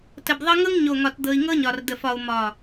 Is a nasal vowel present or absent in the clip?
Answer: absent